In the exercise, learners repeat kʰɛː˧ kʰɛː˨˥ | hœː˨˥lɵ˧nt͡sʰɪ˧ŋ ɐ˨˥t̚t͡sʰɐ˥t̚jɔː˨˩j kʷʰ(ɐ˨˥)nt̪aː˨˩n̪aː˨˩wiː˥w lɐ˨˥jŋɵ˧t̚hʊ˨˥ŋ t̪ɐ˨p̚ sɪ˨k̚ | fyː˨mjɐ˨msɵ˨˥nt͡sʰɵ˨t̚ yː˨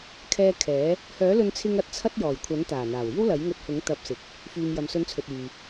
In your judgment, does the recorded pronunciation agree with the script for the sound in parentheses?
yes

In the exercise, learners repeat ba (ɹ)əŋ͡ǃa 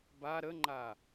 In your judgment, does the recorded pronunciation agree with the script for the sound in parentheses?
no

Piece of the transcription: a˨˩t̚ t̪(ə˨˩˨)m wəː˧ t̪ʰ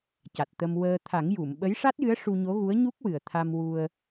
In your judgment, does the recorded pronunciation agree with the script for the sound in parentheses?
no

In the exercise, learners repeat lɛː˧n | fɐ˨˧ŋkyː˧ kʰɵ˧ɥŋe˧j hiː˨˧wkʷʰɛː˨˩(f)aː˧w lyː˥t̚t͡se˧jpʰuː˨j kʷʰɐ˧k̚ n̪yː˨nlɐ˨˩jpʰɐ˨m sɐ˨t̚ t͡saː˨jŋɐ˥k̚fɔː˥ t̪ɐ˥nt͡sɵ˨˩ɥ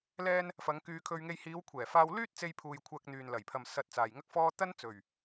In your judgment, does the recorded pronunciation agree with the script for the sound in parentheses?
yes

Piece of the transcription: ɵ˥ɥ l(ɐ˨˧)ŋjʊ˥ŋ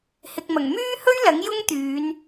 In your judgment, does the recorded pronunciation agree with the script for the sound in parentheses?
no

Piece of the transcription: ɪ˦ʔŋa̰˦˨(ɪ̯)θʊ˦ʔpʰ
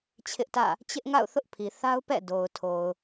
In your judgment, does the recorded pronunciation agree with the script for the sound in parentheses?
no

